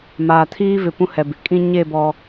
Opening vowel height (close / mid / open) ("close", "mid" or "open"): open